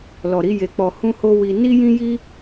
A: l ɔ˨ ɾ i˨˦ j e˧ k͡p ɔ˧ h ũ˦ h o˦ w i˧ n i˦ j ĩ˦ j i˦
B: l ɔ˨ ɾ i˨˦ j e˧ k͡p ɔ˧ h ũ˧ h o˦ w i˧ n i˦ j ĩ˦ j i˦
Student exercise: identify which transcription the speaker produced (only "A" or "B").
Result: A